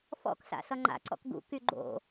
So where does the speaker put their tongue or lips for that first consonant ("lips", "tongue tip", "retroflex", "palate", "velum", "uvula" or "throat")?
lips